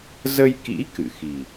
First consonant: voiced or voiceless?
voiced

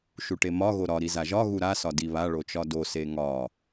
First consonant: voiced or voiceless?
voiceless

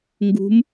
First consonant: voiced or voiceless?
voiced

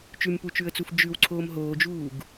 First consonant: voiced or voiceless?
voiceless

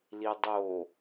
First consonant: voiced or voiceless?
voiced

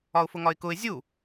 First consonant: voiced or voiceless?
voiceless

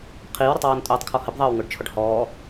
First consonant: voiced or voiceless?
voiceless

